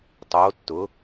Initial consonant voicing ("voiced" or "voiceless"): voiceless